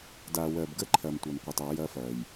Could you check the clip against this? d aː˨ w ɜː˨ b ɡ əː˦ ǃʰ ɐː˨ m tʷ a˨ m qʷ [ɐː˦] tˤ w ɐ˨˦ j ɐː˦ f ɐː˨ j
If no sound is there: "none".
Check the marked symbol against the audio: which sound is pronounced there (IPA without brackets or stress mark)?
ɐː˨